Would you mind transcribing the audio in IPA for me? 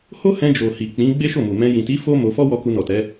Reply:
ho˦hɛ̃˧d͡ʒo˨hi˨ k͡pĩ˨˦ ɡ͡be˦ʃo˦˨mu˨mɛ̃˧ jĩ˨ti˨˦ fo˦ mo˧fɔ˦wɔ˧ku˧ nɔ˨tɛ˨˦

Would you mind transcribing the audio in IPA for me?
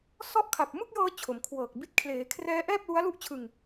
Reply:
sɔ˥˩ʔ kʰa˨˩p̚mɯ˥˩k̚jɤː˧ t͡ɕʰo˩˦mkʰwɤː˨˩k̚bi˦˥t̚ kʰleː˩˦kʰrɛː˦˥ ʔɛː˥˩p̚lu˦˥a̯ lu˥˩ʔt͡ɕʰɯ˧ŋ

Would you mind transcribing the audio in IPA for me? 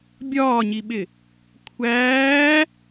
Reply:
bʲɒːɲiɓɪ | kʷʰæː

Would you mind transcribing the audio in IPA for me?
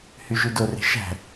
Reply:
hyʒydore̤ ʃæ̤

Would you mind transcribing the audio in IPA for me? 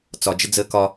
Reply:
t͡sɒd͡ʒəd͡zəː kɒ

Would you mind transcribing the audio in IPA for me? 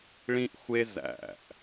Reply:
ɭĩ˥ʔxʷe˥ zæ̰˧˩ʔ

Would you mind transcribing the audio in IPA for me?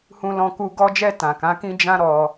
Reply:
hũ˧lɔ̃˧ku˧ ɡɔ˧d͡ʒɛ˧ tã˨kã˨˦kĩ˦ d͡ʒã˦ɾɔ˧

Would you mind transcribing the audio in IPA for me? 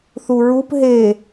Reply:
θuɹup ɦe

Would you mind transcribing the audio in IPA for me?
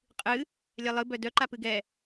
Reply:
qʼɨ | lʲɛlˠɨ bœdœ ǃapɨɡɛ

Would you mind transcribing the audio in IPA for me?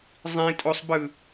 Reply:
zˤĩ tʼosˤbɯ

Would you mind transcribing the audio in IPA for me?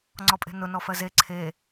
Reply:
ŋ͡ǀɔpʼe̤nʊ nɔfɜze ǀʰe

